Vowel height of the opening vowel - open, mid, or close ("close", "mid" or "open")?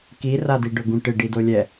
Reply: close